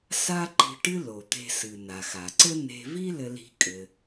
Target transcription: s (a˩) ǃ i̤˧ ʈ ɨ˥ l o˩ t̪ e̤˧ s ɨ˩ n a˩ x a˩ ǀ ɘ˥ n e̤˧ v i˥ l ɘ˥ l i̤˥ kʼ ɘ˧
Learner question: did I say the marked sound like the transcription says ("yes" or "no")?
no